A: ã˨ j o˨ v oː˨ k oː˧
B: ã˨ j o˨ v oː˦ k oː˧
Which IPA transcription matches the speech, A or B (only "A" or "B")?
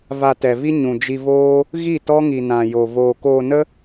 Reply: A